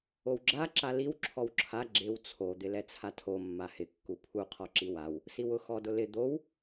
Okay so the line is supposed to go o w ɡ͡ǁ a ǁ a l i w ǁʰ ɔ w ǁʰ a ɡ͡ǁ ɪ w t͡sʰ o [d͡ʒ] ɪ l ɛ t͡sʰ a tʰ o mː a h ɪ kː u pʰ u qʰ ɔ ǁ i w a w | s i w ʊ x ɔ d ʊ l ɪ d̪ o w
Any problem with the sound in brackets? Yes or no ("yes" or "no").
yes